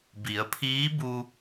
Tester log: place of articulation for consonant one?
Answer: labial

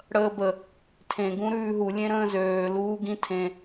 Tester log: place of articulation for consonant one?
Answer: retroflex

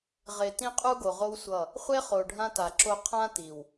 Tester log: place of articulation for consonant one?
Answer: uvular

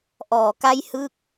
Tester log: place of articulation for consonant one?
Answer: glottal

